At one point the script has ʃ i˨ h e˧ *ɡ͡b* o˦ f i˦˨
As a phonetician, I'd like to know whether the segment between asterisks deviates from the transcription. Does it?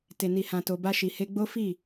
no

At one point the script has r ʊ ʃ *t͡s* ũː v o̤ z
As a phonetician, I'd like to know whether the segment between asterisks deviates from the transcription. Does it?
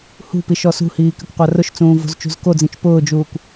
no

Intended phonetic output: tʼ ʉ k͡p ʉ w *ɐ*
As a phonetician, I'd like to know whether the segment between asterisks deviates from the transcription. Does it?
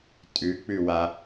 yes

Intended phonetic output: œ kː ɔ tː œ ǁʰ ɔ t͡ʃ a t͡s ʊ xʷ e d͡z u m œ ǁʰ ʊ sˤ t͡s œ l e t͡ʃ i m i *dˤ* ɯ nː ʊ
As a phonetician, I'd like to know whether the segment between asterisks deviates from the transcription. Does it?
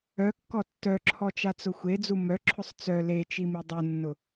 no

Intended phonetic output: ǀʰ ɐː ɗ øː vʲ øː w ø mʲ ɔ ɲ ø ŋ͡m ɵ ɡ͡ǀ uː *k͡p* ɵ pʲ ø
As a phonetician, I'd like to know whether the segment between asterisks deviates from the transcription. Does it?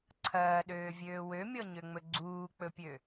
no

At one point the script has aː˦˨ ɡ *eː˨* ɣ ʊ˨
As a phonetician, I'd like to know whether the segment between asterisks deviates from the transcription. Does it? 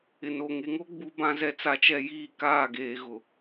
no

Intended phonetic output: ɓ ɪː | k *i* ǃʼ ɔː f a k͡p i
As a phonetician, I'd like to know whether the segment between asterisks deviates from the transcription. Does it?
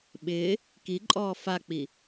no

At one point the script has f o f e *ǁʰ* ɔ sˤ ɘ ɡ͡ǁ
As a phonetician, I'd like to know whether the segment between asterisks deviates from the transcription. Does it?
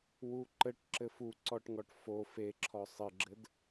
no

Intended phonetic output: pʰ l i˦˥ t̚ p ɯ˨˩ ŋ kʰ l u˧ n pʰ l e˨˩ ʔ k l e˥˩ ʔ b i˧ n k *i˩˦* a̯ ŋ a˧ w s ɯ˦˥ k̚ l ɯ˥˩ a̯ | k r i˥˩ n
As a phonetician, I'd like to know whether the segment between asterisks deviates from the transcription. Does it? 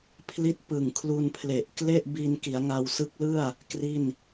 no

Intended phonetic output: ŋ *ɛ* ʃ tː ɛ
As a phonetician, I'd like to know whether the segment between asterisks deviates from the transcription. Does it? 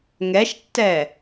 no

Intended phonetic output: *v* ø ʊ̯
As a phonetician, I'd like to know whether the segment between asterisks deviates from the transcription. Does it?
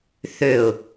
yes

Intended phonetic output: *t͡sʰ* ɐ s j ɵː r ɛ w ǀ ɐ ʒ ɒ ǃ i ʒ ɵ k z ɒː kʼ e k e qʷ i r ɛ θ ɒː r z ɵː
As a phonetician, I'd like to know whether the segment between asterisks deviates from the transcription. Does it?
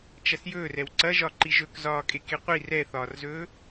yes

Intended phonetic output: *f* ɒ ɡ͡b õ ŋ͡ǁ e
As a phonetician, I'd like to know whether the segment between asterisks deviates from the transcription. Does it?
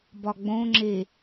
yes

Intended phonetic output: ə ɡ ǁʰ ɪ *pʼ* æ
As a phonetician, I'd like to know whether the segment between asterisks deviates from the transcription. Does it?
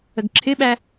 yes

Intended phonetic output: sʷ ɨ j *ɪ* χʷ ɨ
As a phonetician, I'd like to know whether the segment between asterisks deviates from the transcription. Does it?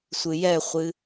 yes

